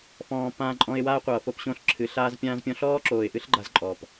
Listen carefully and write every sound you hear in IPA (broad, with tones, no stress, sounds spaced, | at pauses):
f ɔ̃ː˨ p ãː˦ ǃʼ ɔ̃˦ ɪ̯ w aː˦ qʷ ʌː˨ f o˦ p ɕ õ˦ ɬ ǁʰ ɨ˨˦ ɬ aː˦ z pʲ ãː˦ z pʲ ɔ̃˦ ɬ ɔː˦ ǁ oː˨ ɪ̯ ʔ ɨ˦ ɬ ɡ͡ǃ a˦ z ǃʼ ɔː˨ p